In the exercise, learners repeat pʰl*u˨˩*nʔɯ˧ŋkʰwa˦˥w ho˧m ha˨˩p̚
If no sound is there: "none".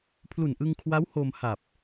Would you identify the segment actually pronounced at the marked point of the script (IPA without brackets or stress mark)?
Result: u˨˩